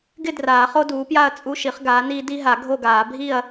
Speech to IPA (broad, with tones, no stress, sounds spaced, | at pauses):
ɡ ɪ˥˨ d r aː˨˩˦ χ o˦ d uː˩˥ p j a˥˨ ɐ̯ t͡sʼ u˦ ʃ i˩˥ χ ɡ aː˩˥ n iː˦ d i˦ ɦ a˨˩˦ ɡʱ o˥˨ ɡ aː˨˩˦ bʱ i˥˨ ɐ̯